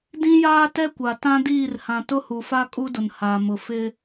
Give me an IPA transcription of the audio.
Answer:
d ĩ˦ j aː˦ t ɛ˦ kʷ a˨ t ã˦ d iː˦˨ r h ã˨ t ʊ˦ h u˨ f a˦ kʼ u˦ d ʊ˨ n h aː˨ m ʊ˨ f ɪ˦

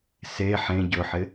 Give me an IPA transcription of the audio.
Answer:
s e ħ ẽ ɟ ɵ ħ ɪ

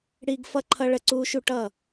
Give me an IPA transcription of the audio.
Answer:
ɽ i˧ ɡ f ʌ˦ ǃʰ ʌ˦ ɭ ə˦˨ ǀ uː˦ ʃ u˧ ʈ ʌ˦˨

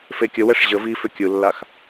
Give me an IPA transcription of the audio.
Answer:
f e kʲ ə w ɛ ʂ ʑ ə v i f ʏ kʲ ɯ lː a x

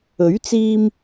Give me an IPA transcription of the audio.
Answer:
ɵ˨˥ ɥ t͡s iː˧ m

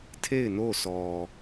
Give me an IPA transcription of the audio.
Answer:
tʰ e˦˨ ɪ̯ n o˦˨ s ɔ˨

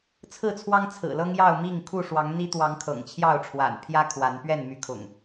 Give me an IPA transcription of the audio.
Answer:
t͡sʰ ɹ̩˥˨ t͡sʰ w ɑ˦ ŋ t͡sʰ ɹ̩˨˩ l ɤ˦ ŋ j ɑ˥˨ ʊ̯ m i˥˨ ŋ kʰ u˥˨ ʂ w ɑ˨˦ ŋ n̪ i˦ t̪ w ɑ˨˦ ŋ kʰ ɤ̰˨˩ ŋ t͡ɕʰ j ɑ˥˨ ʊ̯ ʈ͡ʂʰ w a̰˨˩ n pʰ j ä˦ kʰ w a˨˦ n p ɥ ɛ˥˨ n m y˨˦ kʰ ʊ̰˨˩ ŋ

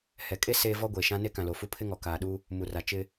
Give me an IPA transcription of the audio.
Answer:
h ɛ˨ kʼ e˦ s eː˦ v ɔ˦ ɡʷ eː˨ ʃ ã˦ n e˦ k ã˨ l o˨ f u˦ pʰ ɪ˦ ŋ ɔ˨ k aː˨ ɗ u˦ | m u˨ r a˨ t͡ʃ ɪ˦

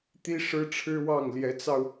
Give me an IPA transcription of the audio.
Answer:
t̪ i˥ ʂ ɻ̩˥ ʈ͡ʂʰ ɻ̩˥ w ɑ˥˩ ŋ l j ɛ˧˥ t͡s ɑ˧ ʊ̯

